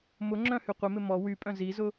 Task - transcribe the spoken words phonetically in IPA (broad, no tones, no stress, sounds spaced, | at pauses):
m ʊ ŋ͡ǁ œ̃ h y qʷ ɪ m ɪ m ɔ w y pʼ œ̃ z i z ʊ